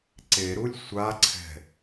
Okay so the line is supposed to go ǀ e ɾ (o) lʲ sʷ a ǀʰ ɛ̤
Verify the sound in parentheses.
incorrect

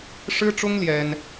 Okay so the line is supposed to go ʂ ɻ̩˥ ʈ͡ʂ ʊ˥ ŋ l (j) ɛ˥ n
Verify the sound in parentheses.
correct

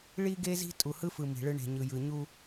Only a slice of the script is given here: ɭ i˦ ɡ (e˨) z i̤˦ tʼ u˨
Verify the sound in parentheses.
incorrect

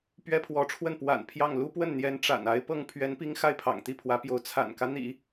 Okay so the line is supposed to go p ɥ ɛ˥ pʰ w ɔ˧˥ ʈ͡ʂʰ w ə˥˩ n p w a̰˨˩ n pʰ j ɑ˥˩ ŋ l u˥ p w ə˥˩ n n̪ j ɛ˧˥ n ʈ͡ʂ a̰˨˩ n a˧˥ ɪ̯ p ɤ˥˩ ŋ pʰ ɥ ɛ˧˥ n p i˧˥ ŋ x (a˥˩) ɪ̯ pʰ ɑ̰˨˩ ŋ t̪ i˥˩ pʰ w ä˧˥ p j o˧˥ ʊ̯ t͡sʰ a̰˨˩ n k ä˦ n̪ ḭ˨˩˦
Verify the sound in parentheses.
correct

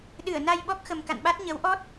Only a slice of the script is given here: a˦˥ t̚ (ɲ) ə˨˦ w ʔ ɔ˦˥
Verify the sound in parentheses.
correct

